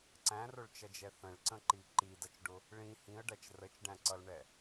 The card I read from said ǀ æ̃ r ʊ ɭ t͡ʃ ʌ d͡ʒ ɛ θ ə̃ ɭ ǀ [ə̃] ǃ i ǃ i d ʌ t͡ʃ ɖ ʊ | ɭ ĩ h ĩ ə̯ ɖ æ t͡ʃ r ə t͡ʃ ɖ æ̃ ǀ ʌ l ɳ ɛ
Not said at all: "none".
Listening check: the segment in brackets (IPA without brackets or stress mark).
ə̃